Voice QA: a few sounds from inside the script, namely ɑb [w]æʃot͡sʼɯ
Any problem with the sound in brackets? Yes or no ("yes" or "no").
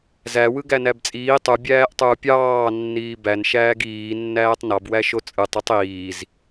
no